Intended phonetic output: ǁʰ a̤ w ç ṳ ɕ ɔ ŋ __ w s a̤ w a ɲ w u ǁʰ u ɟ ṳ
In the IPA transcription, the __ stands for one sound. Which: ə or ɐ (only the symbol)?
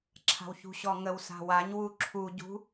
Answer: ə